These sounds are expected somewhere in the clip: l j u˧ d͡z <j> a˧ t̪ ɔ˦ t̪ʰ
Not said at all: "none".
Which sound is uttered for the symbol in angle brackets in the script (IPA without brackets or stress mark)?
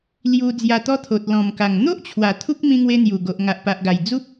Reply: j